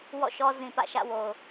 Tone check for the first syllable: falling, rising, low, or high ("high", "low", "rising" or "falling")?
falling